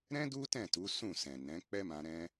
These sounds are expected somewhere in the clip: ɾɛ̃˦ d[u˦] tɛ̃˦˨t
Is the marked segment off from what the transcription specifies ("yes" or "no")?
no